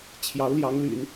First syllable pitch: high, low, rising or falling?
rising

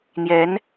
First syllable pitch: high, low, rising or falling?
rising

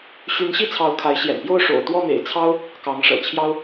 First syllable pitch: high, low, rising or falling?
rising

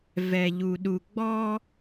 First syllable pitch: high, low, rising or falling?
low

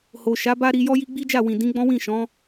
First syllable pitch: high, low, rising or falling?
low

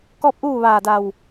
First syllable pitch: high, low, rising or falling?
falling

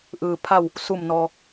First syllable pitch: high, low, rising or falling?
low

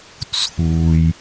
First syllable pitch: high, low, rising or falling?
low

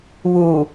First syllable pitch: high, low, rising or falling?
low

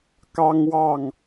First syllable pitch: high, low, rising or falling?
high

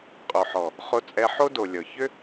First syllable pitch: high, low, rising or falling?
low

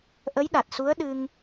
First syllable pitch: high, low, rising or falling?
rising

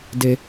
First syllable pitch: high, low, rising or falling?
low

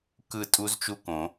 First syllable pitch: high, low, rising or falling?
falling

